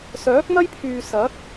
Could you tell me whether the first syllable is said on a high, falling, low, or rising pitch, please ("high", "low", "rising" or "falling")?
rising